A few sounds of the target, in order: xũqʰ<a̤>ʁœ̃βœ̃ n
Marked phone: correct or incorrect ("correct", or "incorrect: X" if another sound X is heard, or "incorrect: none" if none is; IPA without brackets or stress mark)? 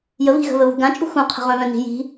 incorrect: ə̤